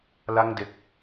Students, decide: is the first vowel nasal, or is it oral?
oral